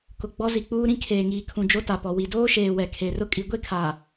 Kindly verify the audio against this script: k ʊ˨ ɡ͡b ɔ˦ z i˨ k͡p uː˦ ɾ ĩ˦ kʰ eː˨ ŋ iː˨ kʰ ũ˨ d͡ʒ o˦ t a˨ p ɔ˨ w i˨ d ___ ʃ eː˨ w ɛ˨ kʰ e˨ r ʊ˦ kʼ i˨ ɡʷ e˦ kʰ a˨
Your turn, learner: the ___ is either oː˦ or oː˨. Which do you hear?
oː˦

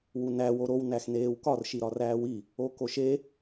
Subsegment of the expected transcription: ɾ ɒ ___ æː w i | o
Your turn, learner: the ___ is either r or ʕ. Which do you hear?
r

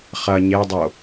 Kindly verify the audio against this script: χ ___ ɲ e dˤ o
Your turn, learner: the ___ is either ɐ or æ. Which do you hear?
ɐ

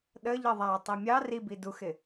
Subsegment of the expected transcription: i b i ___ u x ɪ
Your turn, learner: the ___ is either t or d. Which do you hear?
d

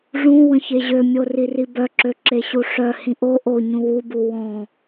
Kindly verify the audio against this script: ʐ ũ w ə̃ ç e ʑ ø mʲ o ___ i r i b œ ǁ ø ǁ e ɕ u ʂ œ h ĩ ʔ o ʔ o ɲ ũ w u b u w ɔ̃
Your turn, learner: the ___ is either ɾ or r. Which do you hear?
r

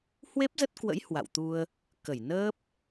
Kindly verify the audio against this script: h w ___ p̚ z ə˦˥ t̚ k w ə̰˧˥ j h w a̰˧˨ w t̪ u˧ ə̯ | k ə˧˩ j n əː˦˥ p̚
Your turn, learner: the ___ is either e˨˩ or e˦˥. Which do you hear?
e˦˥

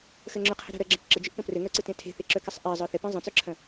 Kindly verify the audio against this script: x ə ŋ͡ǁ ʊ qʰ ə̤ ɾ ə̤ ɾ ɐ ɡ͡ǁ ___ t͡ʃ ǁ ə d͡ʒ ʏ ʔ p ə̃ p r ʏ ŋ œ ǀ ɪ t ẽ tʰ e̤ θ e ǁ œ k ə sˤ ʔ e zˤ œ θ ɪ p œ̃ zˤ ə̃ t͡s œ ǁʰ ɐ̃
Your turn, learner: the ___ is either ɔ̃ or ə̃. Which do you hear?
ə̃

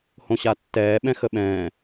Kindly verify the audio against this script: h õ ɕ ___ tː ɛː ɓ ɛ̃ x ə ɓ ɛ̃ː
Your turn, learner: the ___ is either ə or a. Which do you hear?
a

